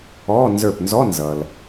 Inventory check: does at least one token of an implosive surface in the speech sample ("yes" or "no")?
no